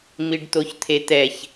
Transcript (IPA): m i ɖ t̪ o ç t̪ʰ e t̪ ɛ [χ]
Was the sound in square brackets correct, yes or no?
no